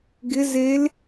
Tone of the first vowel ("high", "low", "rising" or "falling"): rising